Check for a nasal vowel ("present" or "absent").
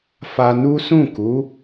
present